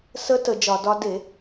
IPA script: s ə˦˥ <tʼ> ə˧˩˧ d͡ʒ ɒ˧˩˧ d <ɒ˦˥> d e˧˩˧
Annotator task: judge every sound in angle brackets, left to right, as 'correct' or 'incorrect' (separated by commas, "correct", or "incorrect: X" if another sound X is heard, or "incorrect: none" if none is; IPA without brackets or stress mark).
incorrect: t, correct